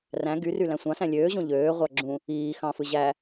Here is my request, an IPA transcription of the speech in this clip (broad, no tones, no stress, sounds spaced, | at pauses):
r æ̃ ɡ y r y l æ̃ sʷ ɑ̃ s æ̃ lʲ øː ʑ õ ʎ øː ʁʷ ɑ ɡ͡ǁ ũ | iː x ɑ̃ f ɯ ʑ æ